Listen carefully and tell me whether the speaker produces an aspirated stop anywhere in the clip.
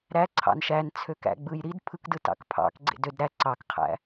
yes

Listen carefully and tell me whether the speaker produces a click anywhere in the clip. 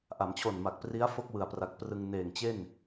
no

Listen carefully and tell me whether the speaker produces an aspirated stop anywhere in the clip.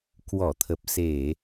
yes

